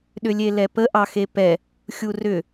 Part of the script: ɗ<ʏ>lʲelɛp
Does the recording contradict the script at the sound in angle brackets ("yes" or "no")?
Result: no